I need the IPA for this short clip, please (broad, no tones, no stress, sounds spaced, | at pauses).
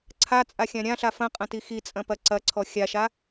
ǀʰ a t͡sʼ a xʲ ã ɾʲ ã ɬ a f ɐ̃ qʼ ɐ̃ t i x i t͡sʼ ɐ̃ p ɐ ǀ ɐ ǀʰ ɔ xʲ a ʃ a